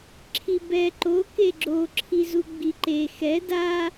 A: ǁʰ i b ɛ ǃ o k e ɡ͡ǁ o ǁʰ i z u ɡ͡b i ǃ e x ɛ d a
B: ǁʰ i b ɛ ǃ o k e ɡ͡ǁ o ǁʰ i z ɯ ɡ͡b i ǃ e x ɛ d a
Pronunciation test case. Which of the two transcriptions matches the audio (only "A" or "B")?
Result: A